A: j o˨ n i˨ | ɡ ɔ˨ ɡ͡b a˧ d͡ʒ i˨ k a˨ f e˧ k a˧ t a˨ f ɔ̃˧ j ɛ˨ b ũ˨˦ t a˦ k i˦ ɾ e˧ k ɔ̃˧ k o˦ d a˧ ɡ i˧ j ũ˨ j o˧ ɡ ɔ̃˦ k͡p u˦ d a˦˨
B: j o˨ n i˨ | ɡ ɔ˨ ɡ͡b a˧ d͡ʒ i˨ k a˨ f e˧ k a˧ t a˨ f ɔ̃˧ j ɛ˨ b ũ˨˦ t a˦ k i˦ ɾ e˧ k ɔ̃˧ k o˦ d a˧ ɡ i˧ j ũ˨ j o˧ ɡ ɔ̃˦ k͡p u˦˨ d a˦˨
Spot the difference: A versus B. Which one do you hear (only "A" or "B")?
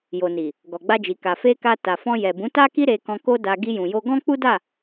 A